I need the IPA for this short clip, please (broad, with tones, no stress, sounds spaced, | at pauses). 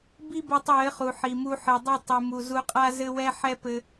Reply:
b i˦ b ɛ˧ tˤ j ɘ˨˦ χ u˨ ħ i˨ m u˧ ħ ɨ˨ dˤ ɨ˦˨ tˤ ɨ˨ m u˨ z u˧ qʼ a˦ z ɘ˧ w ɛ˧ ħ ɛ˦ p ɘ˧